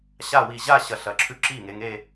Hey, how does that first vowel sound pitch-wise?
falling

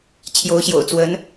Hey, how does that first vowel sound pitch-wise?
rising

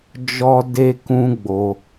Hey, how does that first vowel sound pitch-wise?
high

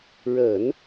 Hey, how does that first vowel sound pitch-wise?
low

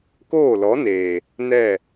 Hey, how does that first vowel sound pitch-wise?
falling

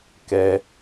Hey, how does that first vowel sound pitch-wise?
high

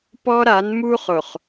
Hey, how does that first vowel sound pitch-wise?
high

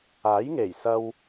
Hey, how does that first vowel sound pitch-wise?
rising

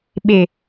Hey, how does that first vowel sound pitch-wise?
low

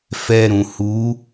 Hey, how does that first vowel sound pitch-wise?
high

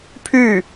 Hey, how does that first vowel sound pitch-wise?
falling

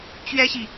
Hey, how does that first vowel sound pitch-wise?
high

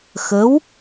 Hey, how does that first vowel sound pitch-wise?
rising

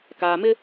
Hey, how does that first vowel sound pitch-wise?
low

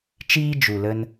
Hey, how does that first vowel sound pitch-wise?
high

